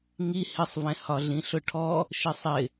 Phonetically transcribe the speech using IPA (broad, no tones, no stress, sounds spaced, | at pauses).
ŋ i h ɪ sˤ v ɛ̃ h ɒ ɮ ĩ ɬ ʊ ʈʰ ɔ | ʃ ɪ sˤ ɪ